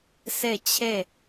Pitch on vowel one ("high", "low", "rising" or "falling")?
falling